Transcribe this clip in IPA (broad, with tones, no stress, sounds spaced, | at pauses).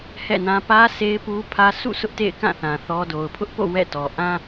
h ɛ̰˦˨ n ã˦ p ä˦ sʰ e˦ ɪ̯ p u˦ pʰ ä˦ sʰ ṵ˦˨ sʰ ʊ˦ ʔ t ḛ˦˨ ɪ̯ k ã˦˨ θ ã˨ θ ɔ˦ d o˨ ʊ̯ pʰ ʊ˦ ʔ p o̰˦˨ w ɛ̰˦˨ t ɔ˨ ʔ ã˦